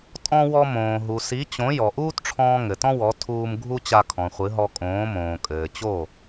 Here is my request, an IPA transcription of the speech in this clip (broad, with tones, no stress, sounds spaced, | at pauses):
tʼ ɔ̃˧ w ɔ˧ m õː˩ ɦ u˩ s i˩˥ t͡ɕ õ˩˥ j ɔ˩ ʔ uː˥ t ʈ͡ʂʰ ɔ̃ː˧ ŋ ɘ˩ t ɔ̃˥ w ɔ˩˥ tʰ uː˧ m ɡʱ u˥ t͡ɕ a˧ kʰ ɔ̃˩ χʷ ɨ˩˥ ɦ ɔ˧ kʼ õː˩˥ m õː˩ kʼ ɘː˩ t͡ɕ o˥˩